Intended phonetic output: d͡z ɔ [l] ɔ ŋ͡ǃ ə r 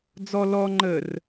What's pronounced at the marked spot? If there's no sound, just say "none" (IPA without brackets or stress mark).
l